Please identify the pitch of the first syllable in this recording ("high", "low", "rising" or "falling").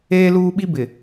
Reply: high